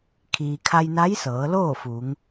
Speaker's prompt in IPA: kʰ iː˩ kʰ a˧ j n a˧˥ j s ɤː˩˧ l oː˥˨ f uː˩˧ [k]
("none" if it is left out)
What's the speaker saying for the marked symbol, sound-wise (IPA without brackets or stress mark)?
ŋ